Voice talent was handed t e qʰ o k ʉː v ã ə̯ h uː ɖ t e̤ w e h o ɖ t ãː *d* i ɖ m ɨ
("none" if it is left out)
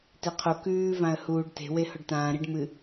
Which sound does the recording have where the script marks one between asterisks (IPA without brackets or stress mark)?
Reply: ɾ